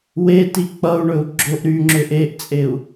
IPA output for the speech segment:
weti k͡pʌu̯ɳɵu̯ ɡ͡ǁoʔ ɾy ŋ͡ǁʏʔeʔt͡sʼeu̯

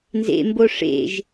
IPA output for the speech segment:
nzḛmbo ʂḛʒ

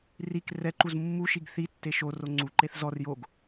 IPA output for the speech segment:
rik rɛǃuz mːuʃiɡ θi tːeʃoro ŋ͡ǀuǃeθ zɔr joɡ

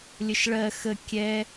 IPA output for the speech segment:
lʲəʃɭɜ xə kʲɛ

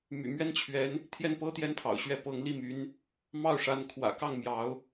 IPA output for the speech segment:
my̰˨˩mɥɛ˥˩nt͡ɕʰɥɛ˧˥n | t̪ʰjɛ˥˩npɤ˥t̪jɛ˥npʰɑ̰˨˩ʊ̯ ɕɥɛ˥˩pɤ˧˥ŋ li˥˩my˧˥n | mɑ˥˩ʊ̯ʂa˧˥nkʰwä̰˨˩ kɑ˥˩ŋ mjɑ˧˥ʊ̯

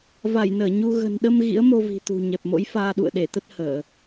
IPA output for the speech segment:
va˧˩jnəː˧˩ ɲu˧ ɣə̤˨˩nɗə˧m ɣḭ˧˥ə̯mo˧vi̤˨˩ t̪ṳ˨˩ ɲɛ˨˩p̚mo̰˧˥jfaː˧ ɗṵ˧˨ə̯ɗe˧˩t̪ə˦˥t̚ həː˧˩˨

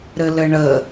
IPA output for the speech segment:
ɾɘlɘɳə

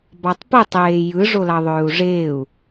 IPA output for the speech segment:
bɑtˤpɯtˤ eːjɯ ʐolɑðˤøːu̯ʐeːu̯

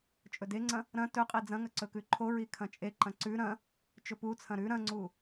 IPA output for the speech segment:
t͡ʃʼɵdeŋ͡ǀɐ̃ | ɾɐ̃ tɵqʼi d͡zɐ̃ŋɐ ǀɵkʉǃʰoɹi kʰɐ̃t͡ʃʼeǃɐ̃ ǀʉ ɾɐ̃ | t͡ʃɵput͡sʰɐ̃ ɾʉ ɾɐ̃ŋ͡ǀu

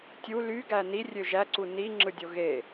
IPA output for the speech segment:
tʲu ly ɡæni rʲøʒæ ǀuni ŋ͡ǁɯdʲoɣe

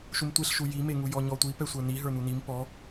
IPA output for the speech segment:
ʃumtʷeɬʃu jimeŋu jɔɲɔtʷi pɛsʷə˞ni ɦə˞n̪unim pɔ

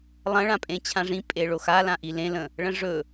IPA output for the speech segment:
lˠɐ̃ɭã pʼẽt͡ɕʰãʐĩpʼe ɭoxalãʔi lẽ lə̃ | ɭə̃ʐɵ

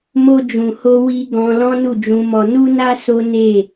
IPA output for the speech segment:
mo˧d͡ʒũ˨ho˧ wi˧ ɡɔ̃˧ lɔ̃˦nu˦˨d͡ʒũ˧mɔ˧ nu˦na˦ so˦ne˦˨

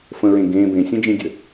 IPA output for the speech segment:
fə̃ɹẽ ɡẽ bẽsʲə̃d͡ʒĩdʲə

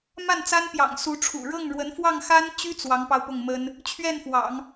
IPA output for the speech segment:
ma˥˩nt͡sa˥npjɑ̰˨˩ŋ su˧˥ʈ͡ʂʰṵ˨˩ ɻɤ˥˩ŋɻwə˧˥nfwɑ˥˩ŋ xa˥nt͡ɕy˥ t͡swɑ˧˥ŋpɑ˧ʊ̯pʊ˥˩ŋmə˥n | t͡ɕʰɥɛ˥˩nfwɑ̰˨˩˦ŋ

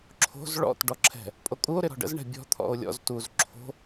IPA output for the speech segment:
ǁʰo̤z ɭɔ̰t ɖɔǁʰɛ̤ | pʼokʼuo̯ ɾɪɾɔ̤ɖə̰z ɳɛ̤bʲɔ̤ t̪ʰɔ̰o̯lʲɔ̰z tuz ǁʰo̤

